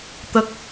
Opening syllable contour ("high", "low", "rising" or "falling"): high